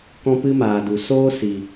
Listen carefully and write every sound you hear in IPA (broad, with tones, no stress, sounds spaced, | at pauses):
k ɔ̃˦ p ɨ˦ m aː˨ d u˨ s oː˦ s i˨